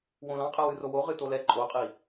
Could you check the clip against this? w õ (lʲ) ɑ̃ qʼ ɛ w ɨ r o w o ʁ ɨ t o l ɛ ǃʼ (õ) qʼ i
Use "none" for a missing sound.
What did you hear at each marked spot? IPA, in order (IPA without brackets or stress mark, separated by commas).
l, o